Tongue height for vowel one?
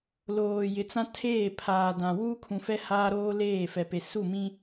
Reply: mid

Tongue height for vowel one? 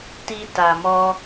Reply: high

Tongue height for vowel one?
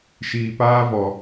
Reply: high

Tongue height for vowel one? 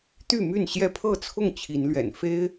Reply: high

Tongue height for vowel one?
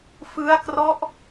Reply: high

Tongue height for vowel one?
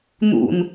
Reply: high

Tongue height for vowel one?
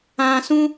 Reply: low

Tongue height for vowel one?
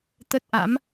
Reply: mid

